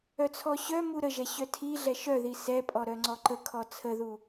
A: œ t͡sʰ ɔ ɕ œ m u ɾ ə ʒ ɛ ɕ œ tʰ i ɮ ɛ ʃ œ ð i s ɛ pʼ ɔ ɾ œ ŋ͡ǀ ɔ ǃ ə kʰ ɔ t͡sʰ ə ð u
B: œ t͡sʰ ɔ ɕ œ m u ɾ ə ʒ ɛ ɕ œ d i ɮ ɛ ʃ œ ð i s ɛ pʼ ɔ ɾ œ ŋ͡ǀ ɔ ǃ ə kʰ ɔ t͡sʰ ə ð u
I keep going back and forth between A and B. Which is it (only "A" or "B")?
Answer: A